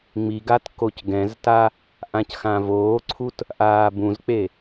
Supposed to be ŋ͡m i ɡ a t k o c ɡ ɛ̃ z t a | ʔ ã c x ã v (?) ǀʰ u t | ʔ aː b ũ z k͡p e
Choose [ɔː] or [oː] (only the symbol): oː